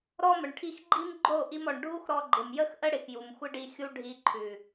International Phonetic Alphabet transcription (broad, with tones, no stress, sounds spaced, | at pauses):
ɾ ɔ˦ m ə˨ ɳ ʈʰ i˧ x ɡ͡ǃ i˦ m ɡ͡ǃ o˦˨ ʔ i˧ m ɔ˨ ɳ ɖʱ u˦ x ɾ ɔ˧ ɡ͡ǃ ɪ˨ m j ə˦ x ʔ ə˦ ɽ ɪ˨ x j u˨ m xʷ ɪ˦ ɖ i˧ xʲ u˦ ɖʱ i˧ ǃʰ ʉ˨